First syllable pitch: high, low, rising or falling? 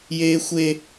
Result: high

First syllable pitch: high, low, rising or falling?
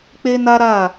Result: high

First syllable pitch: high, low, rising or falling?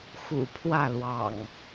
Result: low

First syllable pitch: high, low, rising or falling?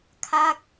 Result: falling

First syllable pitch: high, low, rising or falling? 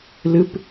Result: high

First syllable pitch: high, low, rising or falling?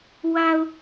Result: low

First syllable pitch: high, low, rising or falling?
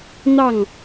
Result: falling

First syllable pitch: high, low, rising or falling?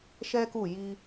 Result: high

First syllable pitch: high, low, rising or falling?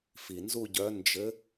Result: low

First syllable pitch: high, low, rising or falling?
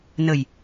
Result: low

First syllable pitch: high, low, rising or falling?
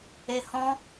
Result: low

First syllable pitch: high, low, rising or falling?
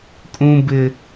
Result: high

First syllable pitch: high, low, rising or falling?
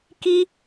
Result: high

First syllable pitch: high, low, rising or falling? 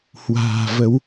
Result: low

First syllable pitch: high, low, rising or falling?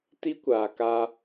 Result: high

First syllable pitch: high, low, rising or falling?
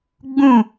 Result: falling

